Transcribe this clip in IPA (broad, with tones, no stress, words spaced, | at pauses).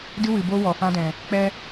dɨ˦wɨ˨bo˦wɔ˨ fã˦dɛ̃˨ | k͡pɛ˦